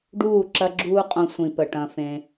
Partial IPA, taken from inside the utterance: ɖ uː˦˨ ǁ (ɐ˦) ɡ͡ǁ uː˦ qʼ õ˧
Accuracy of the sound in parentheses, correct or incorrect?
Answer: correct